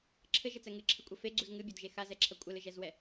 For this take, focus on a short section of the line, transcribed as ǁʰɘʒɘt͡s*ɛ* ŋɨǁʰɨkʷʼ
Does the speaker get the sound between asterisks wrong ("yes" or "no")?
no